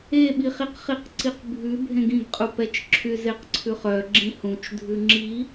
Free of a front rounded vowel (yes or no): no